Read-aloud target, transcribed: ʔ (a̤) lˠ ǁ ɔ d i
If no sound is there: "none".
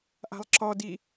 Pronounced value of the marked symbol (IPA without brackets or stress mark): a̤